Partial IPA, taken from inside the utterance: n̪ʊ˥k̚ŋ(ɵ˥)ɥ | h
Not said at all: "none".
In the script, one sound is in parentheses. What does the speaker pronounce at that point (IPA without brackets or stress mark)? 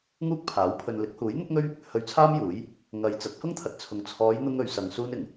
ɵ˥